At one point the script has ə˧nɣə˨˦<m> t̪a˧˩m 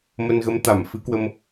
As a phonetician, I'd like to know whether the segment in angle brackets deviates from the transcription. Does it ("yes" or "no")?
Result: no